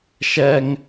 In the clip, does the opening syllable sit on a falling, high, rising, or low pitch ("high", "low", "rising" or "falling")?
high